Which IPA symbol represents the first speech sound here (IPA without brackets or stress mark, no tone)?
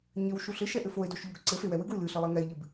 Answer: ɲ